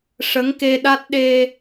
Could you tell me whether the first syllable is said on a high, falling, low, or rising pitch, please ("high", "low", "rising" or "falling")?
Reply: rising